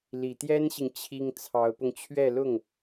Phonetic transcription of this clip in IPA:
l i˨˩ t̪ j ɛ˥ n ɕ i˨ ŋ t͡ɕʰ i˥ ŋ t͡sʰ ɑ˧˥ ʊ̯ p ʊ˧ ŋ t͡ɕʰ ɥ ɛ˥˧ l ʊ˥˩ ŋ

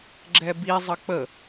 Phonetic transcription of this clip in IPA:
ɡ͡ǁ ɛ b i zˤ ə k͡p ə

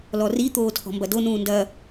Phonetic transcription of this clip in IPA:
l ɔ r i t̪ oː tʰ ɔ̤ m b ɐ d o n ũː n d ɐ

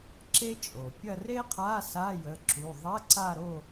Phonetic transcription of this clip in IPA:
ǁ e˥ t͡ʃʼ o˩ pʲ ɐ˦˨ r e˥ qʰ a˧˥˧ s a˧˥˧ j ə˩˧˩ ǁ u˩˧˩ ðˤ ɐ˧˥˧ ǀ a˦˨ ɾ o˦˨

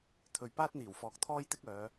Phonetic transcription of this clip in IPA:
t̪ʰ ɵ˨ ɥ p aː˥ t̚ n̪ iː˨˩ w f ɔː˨ k̚ t̪ʰ ɔː˥ j t̪ ɪ˥ k̚ œː˨˧

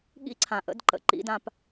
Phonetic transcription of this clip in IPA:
ɠ ḭ˥ ǀʰ ã˩ ʔ ə̰˧˥ d ǃ ə̰˩˧ ǃ ḭ˧˥ d ã˧ p

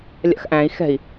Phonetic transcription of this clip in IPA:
lʲ a̰ x ʔ æ̃ i̯ x ɛ̤ i̯

